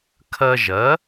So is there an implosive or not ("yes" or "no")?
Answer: no